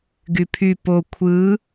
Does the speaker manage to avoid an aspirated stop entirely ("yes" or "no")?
no